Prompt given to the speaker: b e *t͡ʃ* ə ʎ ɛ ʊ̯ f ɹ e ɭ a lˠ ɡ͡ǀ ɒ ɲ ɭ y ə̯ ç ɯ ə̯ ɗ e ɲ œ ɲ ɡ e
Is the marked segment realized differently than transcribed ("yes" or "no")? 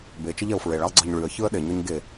no